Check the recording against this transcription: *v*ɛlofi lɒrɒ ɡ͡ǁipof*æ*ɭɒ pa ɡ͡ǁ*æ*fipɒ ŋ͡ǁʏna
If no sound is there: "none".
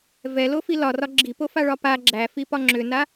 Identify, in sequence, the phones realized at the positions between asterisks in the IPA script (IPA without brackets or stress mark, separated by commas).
v, a, æ